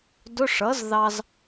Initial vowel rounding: rounded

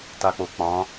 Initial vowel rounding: unrounded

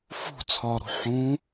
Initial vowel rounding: rounded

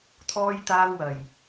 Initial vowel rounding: rounded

